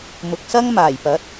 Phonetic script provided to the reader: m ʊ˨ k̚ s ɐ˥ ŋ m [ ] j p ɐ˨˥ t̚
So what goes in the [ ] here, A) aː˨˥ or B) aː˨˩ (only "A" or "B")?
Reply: B